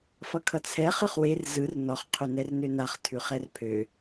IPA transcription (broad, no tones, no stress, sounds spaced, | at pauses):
f ʌ kʰ ʌ t͡sʰ ɛ χ ɯ χ w e r z ɯ r n ɔ χ qʰ ø n ɛ r n ø n a χ tʰ ʉ χ ɛ r pʰ ø